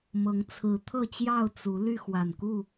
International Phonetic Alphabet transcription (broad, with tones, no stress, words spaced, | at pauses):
mɤ˨˦ŋt͡sʰɹ̩˨˦ t̪ʰɤ˥˨ t͡ɕjɑ˥˨ʊ̯ t͡su˨˦ ly˥˨xwa˨˩n ku˥˨